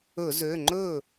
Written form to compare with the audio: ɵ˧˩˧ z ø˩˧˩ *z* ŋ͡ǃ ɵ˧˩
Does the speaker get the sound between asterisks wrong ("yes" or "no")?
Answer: yes